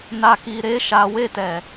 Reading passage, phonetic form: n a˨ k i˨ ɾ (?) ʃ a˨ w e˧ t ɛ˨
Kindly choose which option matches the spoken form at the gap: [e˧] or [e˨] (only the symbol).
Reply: e˧